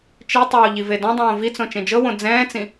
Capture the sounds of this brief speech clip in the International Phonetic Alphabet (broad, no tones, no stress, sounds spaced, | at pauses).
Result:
t͡ʃ i tˤ oː ʎ i v e d õ dˤ õː v i t͡s õ t͡ʃ ẽ d͡ʒ ɤ w õ d͡z ɛ̃ː t͡s ĩ